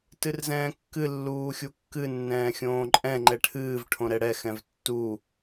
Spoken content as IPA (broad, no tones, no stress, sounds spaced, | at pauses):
t ɨ r z ɛ̃ː kː ɨ lː uː xʲ u kː ɨ nː ɛ̃ː xʲ õː ǃʼ ɛ̃ ŋ͡ǃ ɛ ʈʰ ɨː v ʈʰ õ ɾ ɛ ɽ ɛ x ɛ̃ v tː u